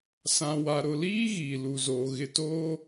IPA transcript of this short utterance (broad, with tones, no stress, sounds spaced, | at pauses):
s ã˨ w a˨ ɾ ʊ˨ l iː˦ ɣ iː˨ l u˨ z oː˨ ɣ ɪ˨ t oː˦